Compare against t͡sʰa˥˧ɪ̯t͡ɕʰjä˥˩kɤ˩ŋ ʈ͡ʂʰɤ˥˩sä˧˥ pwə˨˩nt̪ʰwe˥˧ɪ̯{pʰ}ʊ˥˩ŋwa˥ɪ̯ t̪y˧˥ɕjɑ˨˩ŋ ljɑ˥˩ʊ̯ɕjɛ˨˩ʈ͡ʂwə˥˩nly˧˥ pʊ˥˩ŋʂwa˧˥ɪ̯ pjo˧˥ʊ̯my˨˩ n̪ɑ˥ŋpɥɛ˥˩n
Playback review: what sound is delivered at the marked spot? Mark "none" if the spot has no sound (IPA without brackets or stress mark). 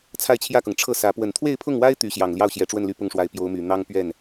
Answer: pʰ